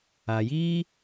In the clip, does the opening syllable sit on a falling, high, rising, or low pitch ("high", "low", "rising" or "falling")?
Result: low